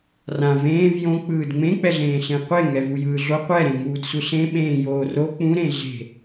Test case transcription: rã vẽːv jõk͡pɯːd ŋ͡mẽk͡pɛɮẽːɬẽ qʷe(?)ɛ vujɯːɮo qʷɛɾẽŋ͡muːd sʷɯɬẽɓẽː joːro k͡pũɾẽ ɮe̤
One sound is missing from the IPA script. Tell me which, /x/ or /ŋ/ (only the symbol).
ŋ